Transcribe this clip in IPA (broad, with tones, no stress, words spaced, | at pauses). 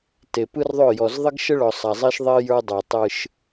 te˨pɯ˦rðˤɵ˦˨ jɔ˨z ðˤə˦ɡʃə˦ɭɔ˨sˤa˨ zˤe˦ʃðˤe˦ jə˞˦dˤə˞˨ tˤɯ˦ʃ